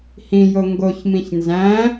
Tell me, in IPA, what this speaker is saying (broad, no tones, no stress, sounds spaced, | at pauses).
h ĩ j o ŋ ɡ o ç m ĩ ç n z æ̃